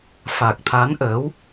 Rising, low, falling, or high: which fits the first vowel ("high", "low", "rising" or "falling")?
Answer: low